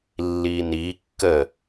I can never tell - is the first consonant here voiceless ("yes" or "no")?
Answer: no